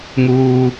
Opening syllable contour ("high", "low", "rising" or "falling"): low